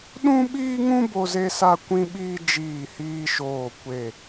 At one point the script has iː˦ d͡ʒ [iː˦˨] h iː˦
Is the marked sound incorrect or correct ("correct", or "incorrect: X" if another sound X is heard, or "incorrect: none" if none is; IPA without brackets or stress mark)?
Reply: correct